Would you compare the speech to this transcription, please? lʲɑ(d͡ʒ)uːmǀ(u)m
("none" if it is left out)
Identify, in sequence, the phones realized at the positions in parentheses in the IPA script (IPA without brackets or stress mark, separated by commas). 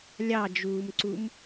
d͡ʒ, u